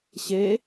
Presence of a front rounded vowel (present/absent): absent